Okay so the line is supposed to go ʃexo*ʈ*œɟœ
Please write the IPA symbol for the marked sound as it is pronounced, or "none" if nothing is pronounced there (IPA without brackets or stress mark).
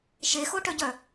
ʈ